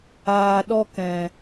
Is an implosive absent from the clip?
no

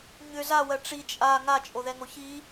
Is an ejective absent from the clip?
no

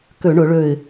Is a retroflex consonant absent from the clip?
no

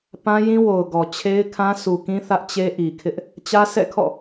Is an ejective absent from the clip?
yes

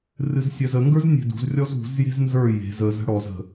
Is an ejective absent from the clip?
yes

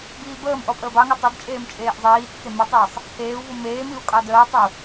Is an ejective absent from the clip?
no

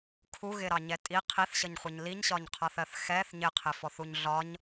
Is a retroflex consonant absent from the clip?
yes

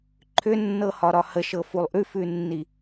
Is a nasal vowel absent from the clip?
yes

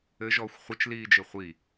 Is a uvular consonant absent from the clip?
no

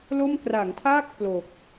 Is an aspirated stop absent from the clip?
no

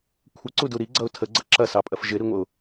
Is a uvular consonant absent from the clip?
yes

